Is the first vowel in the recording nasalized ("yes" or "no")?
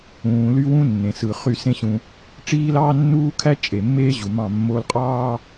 yes